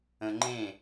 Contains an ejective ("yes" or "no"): no